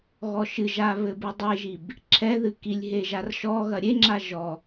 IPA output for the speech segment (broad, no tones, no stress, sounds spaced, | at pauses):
ɣ ɔ ʃ ɨ ʒ a β ɘ b ɨ dˤ e ʒ i b | ǁʰ ɛ ð ɨ k i lʲ ɦ e ʒ a r ʃ ɔ ɣ ɐ ɾʲ e ŋ͡ǁ a ʒ ɔ